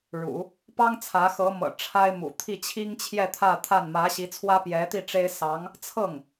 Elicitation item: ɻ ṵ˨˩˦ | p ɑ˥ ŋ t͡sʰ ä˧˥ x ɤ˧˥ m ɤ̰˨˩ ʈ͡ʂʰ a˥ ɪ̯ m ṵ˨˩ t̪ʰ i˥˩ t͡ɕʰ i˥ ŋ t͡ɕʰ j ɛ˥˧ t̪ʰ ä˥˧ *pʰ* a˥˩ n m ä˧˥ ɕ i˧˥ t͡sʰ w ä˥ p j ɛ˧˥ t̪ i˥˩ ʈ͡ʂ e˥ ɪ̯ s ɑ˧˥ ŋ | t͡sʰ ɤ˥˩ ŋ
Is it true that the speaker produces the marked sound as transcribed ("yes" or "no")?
no